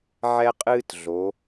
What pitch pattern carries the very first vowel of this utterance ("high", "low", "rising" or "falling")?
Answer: high